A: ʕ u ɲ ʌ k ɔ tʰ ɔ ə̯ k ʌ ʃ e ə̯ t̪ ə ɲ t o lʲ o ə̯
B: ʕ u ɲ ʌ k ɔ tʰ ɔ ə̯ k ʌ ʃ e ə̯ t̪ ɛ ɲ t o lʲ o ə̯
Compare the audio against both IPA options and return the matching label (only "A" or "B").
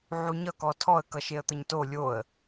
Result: A